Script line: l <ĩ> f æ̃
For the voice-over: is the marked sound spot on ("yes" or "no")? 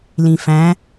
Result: yes